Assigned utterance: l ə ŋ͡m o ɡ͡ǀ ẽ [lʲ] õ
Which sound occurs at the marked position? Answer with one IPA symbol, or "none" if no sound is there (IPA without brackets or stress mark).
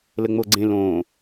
l